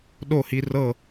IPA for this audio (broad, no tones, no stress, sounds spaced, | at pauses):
ɗ o h i r ɤ